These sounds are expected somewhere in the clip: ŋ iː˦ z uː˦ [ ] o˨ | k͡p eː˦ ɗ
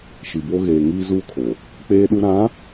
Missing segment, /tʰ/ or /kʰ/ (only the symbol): kʰ